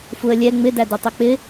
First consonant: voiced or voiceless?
voiceless